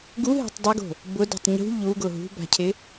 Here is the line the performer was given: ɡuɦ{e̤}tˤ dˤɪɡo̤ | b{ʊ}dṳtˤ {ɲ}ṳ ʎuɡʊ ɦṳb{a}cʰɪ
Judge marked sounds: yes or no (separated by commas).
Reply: yes, yes, yes, no